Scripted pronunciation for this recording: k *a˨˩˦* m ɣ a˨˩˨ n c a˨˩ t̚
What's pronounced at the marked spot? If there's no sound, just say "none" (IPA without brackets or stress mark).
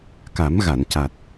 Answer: a˨˩˦